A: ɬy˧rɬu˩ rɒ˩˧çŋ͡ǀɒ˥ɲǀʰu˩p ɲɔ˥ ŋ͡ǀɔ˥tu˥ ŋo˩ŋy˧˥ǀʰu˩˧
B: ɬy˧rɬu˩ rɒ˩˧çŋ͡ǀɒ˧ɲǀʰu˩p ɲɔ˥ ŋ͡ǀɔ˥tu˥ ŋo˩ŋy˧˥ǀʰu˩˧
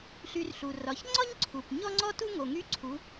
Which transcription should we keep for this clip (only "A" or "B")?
A